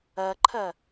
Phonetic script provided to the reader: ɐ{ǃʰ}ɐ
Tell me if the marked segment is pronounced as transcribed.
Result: yes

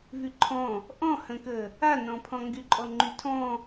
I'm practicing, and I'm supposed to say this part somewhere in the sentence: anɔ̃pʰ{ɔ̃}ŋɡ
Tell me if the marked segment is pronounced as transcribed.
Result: yes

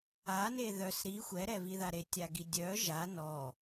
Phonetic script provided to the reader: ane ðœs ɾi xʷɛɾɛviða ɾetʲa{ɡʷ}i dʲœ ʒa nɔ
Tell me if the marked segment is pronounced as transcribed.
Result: no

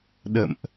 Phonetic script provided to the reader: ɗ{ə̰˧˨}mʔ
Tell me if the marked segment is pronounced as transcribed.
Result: yes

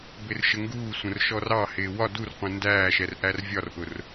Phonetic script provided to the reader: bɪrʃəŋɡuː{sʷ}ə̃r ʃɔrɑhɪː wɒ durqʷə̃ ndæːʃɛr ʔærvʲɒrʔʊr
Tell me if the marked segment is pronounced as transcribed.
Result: yes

